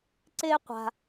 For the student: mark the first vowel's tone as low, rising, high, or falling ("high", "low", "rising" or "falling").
high